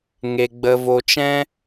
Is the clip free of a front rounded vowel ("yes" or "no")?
yes